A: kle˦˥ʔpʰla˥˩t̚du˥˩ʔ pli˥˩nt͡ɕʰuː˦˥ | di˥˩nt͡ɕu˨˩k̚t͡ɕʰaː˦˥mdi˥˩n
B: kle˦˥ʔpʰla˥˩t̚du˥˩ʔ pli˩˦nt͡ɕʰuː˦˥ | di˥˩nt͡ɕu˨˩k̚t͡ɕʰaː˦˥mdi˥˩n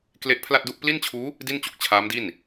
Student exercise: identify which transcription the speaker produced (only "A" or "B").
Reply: A